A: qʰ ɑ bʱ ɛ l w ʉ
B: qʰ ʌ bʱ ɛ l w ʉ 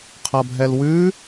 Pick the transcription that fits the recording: B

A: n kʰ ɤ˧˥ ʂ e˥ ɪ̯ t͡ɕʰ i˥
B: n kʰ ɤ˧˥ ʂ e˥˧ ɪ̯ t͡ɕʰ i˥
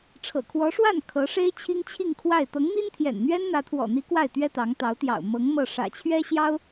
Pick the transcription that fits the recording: A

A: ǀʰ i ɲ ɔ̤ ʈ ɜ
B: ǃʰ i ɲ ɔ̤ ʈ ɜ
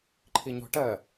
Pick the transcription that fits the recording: B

